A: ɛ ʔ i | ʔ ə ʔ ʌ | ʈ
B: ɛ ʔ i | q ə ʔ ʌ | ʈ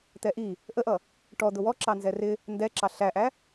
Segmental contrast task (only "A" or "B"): A